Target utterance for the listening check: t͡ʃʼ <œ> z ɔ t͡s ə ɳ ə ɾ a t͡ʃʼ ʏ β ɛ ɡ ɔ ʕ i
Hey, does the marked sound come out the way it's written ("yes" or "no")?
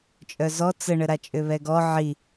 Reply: yes